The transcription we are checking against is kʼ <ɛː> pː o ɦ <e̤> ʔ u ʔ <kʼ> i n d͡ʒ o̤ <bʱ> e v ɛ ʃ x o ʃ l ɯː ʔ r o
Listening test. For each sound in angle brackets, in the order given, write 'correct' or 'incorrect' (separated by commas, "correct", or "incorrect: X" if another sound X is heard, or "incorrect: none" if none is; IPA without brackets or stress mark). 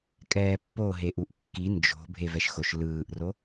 correct, incorrect: e, incorrect: kː, correct